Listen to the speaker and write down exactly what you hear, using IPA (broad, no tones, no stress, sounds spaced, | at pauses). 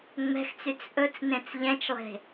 ŋ͡m ɛ̤ x t͡s y t͡s ʔ ɵ t͡s n ẽ t͡s ʎ ɛ̃ t͡ʃ lˠ e̤